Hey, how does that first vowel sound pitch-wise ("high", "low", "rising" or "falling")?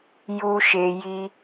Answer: low